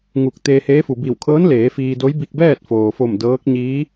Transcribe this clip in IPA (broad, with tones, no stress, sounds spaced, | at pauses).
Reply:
ŋ u˧˩ k̚ t̪ eː˧ h eː˧˥ f u˩ b i˧˩ w kʰ ɤː˧˥ n l eː˩˧ f iː˧ d o˧˥ j b i˧ k̚ b ɛː˥˨ t̚ f oː˩ f o˧˩ m d ɤː˧˥ k̚ ɲ iː˧˥